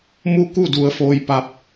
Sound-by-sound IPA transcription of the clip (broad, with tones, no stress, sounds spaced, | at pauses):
m u˥˨ k u˥˨ d u˩˧ ə̯ f oː˧ j p a˧˥ p̚